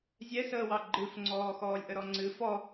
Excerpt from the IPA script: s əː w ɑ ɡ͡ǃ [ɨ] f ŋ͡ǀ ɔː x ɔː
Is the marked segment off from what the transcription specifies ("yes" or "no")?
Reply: no